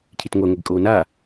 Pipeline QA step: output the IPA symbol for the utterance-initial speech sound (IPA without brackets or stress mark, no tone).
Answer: cʰ